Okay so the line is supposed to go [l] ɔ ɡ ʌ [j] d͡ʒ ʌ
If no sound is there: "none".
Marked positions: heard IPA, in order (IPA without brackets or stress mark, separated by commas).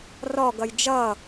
r, j